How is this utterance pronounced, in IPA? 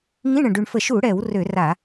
ŋĩ˧˥˧ɳə̃˨˩ɖy˨˩ɳfə˧˩˧ ʃu˧˩˧ɽɛ˧˩˧w rø˧˩˧ra˧˩˧

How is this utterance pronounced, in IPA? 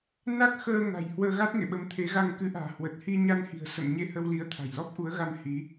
na˦˥k̚xəː˧ ŋa̤˨˩jhwəː˧ɣa˦˥t̚ŋḛ˧˨ ɓə˨˦mt̪ʰe˨˦ɣa˧ŋ kɨ˨˦ʔa̤ː˨˩ hwə˨˩t̚hi˧ɲa˧n hi̤˨˩ə̯ sə̰˧˨mɲe˧hə˧wli˨˦ə̯ t̪ʰa̤˨˩jlɔ˦˥p̚ʔu˨˦ə̯ɣa˧m hi˨˦

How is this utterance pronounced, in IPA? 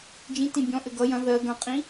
d͡ʒĩtĩ bʲɔ̃ ʔɘɡʌ jɐ̃ ðɜ ɡɐ̃qʼĩ

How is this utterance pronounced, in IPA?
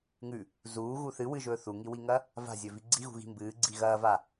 ŋʉ | zuːɣu θɨ wɨʒɵː θuŋiwiŋɐ | va̤zʲɵvi ɡ͡ǀiɣṳɣi̤ mbɨːɡ͡ǀi ɣɐːva

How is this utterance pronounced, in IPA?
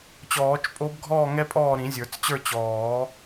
t͡ɕɔː˨˩˦t͡ʃpʼo˧˥bɡʱɔː˥˨ ŋɛ˥pʼɔː˥˨ ɾĩ˨˩˦zʲə˞˨˩˦t͡st͡ɕə˞˥˨ t͡ɕɔː˨˩˦

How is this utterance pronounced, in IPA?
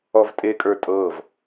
ɔvtʼekʼə˞ tʼɤv

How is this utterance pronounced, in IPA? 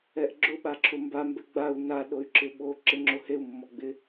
ɛʔɡ͡ǁʊ ɓaǁʰʊmba mbɛɡ͡bau̯ na ɗoy̯ǁɪɓo ǁɪŋ͡ǁoheu̯ mːɔɡ͡bɪ

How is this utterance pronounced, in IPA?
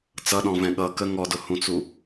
t͡sʌɗɔ̃ vɛ̃ɠʌ kə ŋɔdʊhũt͡su

